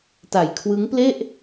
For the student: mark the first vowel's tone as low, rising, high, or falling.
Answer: low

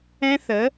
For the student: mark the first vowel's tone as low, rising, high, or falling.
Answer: high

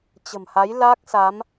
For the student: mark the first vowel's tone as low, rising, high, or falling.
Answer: low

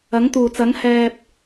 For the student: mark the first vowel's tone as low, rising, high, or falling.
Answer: rising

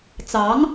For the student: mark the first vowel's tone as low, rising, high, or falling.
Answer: rising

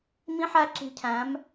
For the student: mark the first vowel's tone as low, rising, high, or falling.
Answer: high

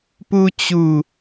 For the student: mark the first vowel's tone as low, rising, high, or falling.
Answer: high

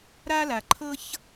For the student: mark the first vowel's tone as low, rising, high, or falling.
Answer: high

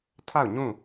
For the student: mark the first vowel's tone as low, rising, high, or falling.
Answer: falling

